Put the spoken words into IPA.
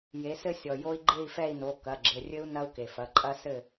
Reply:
j e˩˧ s ɘ˧ sʲ ɔ˩ j o˦˥ i̯ ɡ͡ǃ e˥˨ i̯ f ɛ˥˨ i̯ n o˩˧˩ k ɐ˩˧˩ ɡ͡ǁ ɘ˩˧˩ rʲ ɘ˦˥ u̯ n ɐ˦˥ u̯ k e˩ f ɐ˩˧˩ ǃʼ ɐ˦˥ s ɘ˥˨

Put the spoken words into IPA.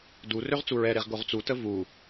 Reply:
d u r ø ʁ t͡s u ɹ ɛ ɾ e ʁ ɡ o ʁ t͡s u t ə v u

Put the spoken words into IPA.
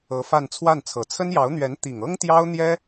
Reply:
ɤ˧˥ f a˥˧ n t͡sʰ w a˥˩ n t͡sʰ ɤ˨˩ t͡sʰ ə˥ n j ɑ˧˥ ʊ̯ n̪ ɥ ɛ˧˥ n t̪ i˨˩ ŋ ɤ˥ ŋ t̪ j ɑ˥ ʊ̯ n̪ j ɛ˥

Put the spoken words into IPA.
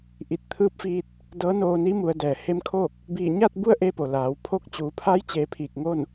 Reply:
ʔ i˧˩ t̚ t̪ʰ ɯː˧˥ p̚ f iː˧ t̚ | d ɤː˧˥ n oː˧ n i˧˥ m u˩˧ ə̯ d ɛː˩ h e˧ m kʰ oː˥˨ k̚ | b iː˧˩ ɲ aː˥˨ t̚ b u˥˨ ə̯ ʔ e˧ p o˩ l aː˩˧ w pʰ o˥˨ k̚ t͡ɕ uː˩˧ pʰ a˧˥ j t͡ɕ eː˩˧ pʰ iː˧˩ k̚ ŋ o˥˨ n

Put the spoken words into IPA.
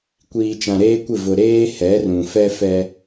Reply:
kʷ iː˨ t͡ʃ ã˨ ɾ eː˦ kʷ ɪ˦˨ v ʊ˨ ɾ eː˦ h ɛ˨˦ r ũ˨ f ɛ˦ f ɛ˦

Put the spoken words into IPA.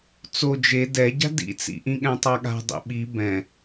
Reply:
t͡s o d͡ʒ e d ɛ ɟ a̤ d ḭ t͡s ḭ ʔ ĩ ɠ ɛ̃ tˤ a ɠ a̤ dˤ ḭ ɓ i b ɛ̃

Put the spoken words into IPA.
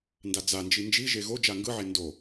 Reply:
n d a d͡z a n d͡ʒ i n d͡ʒ i ʒ e ɣ o d͡ʒ a ŋ ɡ ɯ ʕ e n d o

